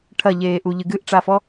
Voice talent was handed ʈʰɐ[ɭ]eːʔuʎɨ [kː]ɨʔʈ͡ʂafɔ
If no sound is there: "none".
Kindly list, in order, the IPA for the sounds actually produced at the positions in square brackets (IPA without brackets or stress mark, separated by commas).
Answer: ʎ, ɡ